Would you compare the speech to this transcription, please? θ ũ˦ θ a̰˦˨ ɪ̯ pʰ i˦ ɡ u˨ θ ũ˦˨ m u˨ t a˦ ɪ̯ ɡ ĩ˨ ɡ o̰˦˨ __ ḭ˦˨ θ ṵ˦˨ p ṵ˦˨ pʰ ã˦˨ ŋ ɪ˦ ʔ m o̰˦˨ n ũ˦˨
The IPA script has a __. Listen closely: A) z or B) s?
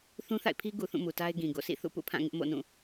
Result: B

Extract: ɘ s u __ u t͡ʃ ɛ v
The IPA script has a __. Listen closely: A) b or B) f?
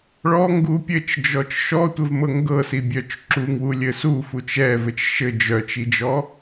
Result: B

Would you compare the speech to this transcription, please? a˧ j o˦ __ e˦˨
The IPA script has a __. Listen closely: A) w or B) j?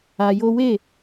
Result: A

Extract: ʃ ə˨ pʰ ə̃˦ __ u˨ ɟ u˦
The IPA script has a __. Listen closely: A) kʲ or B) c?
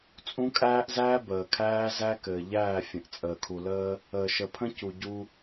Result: B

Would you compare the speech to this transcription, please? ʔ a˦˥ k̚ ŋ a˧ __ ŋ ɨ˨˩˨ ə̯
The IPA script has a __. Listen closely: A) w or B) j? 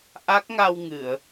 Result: A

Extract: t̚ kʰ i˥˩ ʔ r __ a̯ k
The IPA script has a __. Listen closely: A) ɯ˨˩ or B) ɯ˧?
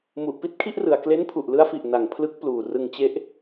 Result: A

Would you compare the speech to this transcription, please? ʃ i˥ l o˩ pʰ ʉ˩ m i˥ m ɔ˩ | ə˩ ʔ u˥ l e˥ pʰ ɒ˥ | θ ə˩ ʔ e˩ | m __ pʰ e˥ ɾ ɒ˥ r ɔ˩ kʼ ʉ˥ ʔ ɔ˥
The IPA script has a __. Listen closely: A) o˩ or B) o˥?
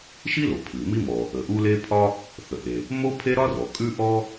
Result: B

